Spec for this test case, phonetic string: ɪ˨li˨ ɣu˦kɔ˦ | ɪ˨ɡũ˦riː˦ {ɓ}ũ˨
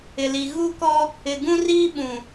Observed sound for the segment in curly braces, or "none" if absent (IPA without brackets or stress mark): ɓ